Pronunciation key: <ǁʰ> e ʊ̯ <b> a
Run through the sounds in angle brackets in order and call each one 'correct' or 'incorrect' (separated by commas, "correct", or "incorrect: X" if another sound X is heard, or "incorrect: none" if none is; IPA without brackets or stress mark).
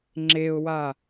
incorrect: ŋ͡ǁ, incorrect: w